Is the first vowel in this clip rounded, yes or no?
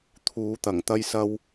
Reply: yes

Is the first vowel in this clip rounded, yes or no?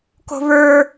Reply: yes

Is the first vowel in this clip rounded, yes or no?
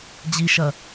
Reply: no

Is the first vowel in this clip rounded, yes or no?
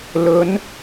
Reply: yes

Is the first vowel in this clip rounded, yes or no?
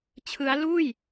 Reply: no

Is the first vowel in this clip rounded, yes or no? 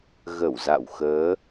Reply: no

